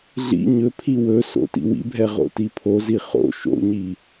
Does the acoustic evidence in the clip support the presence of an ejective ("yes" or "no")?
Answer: no